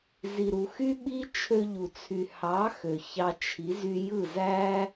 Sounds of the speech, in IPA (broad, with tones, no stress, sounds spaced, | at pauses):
z i˨ ɾ u˨ x y˦ ɓ i˦ t͡ʃʰ ø˧ ʎ u˨ t͡sʰ y˨ h ɑ˨˦ x ø˨ ç ɑ˧ t͡ʃʰ i˨˦ z y˧ j ɯ˦˨ z æ˦